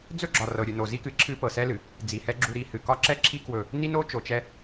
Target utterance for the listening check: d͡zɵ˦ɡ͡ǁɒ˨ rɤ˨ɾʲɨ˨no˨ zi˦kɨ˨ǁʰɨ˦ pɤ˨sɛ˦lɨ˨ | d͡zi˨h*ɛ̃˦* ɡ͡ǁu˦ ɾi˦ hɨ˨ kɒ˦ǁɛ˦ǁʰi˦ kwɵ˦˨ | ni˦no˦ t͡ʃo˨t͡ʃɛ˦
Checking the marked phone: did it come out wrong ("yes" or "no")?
yes